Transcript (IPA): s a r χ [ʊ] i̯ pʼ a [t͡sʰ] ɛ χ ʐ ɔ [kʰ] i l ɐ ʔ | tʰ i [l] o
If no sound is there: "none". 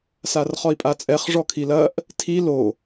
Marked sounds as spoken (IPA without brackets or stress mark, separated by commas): ɔ, t͡sʼ, kʰ, l